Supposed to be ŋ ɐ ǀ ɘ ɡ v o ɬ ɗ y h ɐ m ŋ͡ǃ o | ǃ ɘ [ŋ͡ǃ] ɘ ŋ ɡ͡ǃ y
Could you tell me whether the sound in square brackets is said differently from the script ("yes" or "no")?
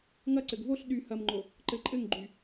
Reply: yes